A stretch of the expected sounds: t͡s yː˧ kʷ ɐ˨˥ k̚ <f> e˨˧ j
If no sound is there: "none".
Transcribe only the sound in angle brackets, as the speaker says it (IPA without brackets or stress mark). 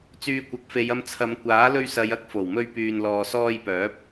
f